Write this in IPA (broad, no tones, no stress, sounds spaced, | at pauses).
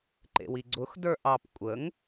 ǃ ḛ w i ɡ͡ǀ ʊ x d ə˞ ʔ ɑ p kʷʼ ə ŋ